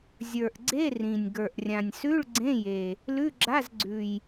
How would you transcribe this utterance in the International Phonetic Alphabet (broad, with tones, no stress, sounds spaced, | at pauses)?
zʲ ə˞˨˩ ʔ ɡ͡ǀ e˧˥˧ r ĩ˨˩ nʲ ɡ ə˞˨˩ ʔ rʲ ã˨˩ nʲ s ʉ˧˥˧ ɭ ɡ͡ǀ ẽ˧˥˧ j e˨˩ | l ʉ˧˥˧ ɡ͡ǁ a˧˥˧ z ɡ͡ǀ ʉ˨˩ j